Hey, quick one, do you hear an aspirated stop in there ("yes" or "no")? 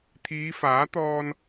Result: yes